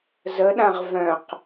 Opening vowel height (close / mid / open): mid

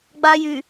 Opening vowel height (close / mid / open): open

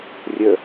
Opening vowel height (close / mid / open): mid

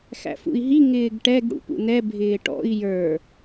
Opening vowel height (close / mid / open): open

